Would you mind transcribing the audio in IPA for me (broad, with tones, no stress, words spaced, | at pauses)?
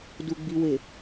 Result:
du˨ɡ͡bi˨we˨